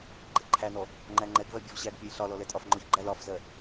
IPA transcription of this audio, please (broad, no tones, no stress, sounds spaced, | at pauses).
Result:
ɡ͡ǃ ɛ ǃʰ æ n ɔ | ŋ͡ǃ æ ŋ͡ǃ ɛ ɡ v ɜ bʲ ɔ v ɕ æ ɡ pʲ ɔ j ɬ ɒ l ɔ l ɛ tʼ ɒ f ŋ͡ǃ ɔ ç ɡ͡ǃ æ l ɒ f z ɜ